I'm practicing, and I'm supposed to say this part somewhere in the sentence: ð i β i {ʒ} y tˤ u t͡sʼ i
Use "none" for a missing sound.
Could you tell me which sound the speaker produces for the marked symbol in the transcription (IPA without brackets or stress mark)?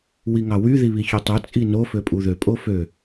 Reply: ç